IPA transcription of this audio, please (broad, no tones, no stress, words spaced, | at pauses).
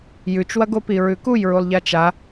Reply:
jʉt͡ʃwɐɡopi ɹʉkujɹulˠ ʎat͡ʃa